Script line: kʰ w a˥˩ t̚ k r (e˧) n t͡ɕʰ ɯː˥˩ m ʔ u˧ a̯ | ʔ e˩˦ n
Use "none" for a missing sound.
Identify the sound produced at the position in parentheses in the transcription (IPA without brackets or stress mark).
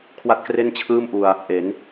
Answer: e˥˩